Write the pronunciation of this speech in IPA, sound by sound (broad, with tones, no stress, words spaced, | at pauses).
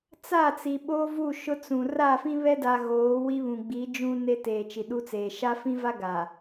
t͡sa˦˨t͡si˨ ɓoː˦vu˦˨ʃʊ˦ t͡sũ˨ ra˦˨fĩ˦βɛ˦da˨ ɣoː˨˦wi˦βũ˨ɡ͡bi˨˦ d͡ʒũ˦ne˦ teː˨ t͡ʃi˨ɗu˦t͡seː˨ ʃa˦fĩ˦va˦ ɡa˨